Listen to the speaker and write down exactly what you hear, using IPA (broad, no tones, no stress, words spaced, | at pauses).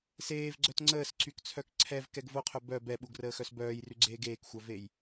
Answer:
seːvɡ͡ǀœt ŋ͡ǀəːsǀykt͡sʰœk ǀʰɛvkɛɡ voqʰœ bœ bɛɓuɡrəːxœs bœːjryɡ͡ǀeː ɡeːkxʷœvej